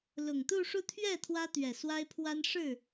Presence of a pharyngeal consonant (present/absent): absent